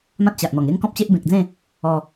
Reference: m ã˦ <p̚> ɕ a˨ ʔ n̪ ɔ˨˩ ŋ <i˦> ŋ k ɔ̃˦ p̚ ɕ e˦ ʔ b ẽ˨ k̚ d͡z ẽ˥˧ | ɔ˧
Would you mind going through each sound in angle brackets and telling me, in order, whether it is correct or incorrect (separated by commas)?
incorrect, incorrect